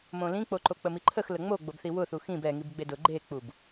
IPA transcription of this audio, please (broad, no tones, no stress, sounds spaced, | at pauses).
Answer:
m õ l ĩ k͡p o ǃ o k͡p ə m i ǃʰ ə x l ə ŋ͡m o ɡ͡b o b θ i w ʊ θ u x ĩ b ɛ ŋ i b ɡ͡b e d ʊ ɡ͡ǃ e k͡p u b